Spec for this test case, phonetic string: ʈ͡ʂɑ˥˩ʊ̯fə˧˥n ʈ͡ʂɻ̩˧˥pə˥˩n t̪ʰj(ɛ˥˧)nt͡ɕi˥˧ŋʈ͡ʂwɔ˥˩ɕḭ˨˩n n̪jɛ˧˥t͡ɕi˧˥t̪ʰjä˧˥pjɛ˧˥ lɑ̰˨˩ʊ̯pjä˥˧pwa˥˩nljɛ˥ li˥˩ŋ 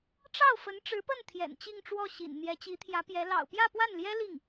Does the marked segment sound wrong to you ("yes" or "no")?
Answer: yes